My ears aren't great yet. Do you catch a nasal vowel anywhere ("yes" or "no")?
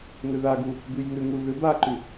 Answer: no